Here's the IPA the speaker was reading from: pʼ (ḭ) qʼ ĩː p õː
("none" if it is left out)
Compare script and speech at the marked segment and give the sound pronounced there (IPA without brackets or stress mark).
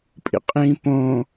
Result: ḭ